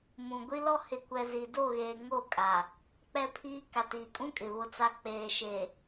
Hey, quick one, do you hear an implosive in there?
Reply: no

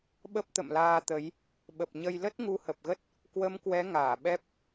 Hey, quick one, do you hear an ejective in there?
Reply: no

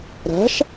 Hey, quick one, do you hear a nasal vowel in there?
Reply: no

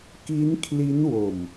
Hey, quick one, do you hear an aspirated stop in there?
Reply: yes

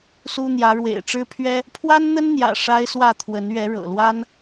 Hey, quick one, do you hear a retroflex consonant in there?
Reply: yes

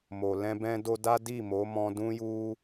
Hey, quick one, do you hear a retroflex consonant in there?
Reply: no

